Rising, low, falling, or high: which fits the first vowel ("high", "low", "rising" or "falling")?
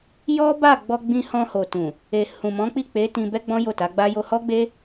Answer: high